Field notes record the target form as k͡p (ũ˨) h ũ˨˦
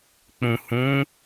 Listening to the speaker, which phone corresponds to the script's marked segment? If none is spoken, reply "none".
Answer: ũ˨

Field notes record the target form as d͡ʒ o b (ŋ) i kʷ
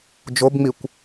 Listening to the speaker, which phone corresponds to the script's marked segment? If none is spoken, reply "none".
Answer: ŋ͡m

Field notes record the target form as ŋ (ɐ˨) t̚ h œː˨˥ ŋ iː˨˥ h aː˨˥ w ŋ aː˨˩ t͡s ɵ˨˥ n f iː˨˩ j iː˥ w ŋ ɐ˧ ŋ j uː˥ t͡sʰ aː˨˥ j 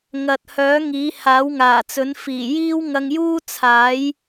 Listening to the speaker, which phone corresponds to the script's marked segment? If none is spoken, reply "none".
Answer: ɐ˨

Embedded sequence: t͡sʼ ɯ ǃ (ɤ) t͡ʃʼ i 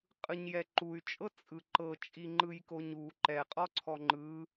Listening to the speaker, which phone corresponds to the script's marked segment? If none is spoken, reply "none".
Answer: ɤ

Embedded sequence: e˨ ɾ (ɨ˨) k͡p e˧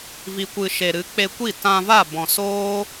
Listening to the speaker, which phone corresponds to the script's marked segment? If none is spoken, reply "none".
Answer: ɨ˨˦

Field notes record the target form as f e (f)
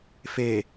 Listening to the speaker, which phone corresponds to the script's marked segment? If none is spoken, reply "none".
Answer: none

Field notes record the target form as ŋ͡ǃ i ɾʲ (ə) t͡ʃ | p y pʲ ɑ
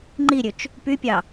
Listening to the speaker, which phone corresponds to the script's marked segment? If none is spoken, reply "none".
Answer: ø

